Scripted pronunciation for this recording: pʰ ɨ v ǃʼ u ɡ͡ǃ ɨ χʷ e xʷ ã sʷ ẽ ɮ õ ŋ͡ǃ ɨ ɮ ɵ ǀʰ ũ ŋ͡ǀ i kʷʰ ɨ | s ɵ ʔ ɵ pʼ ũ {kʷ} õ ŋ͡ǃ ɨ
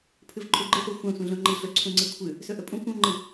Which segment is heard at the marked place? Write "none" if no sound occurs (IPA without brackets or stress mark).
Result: kʷ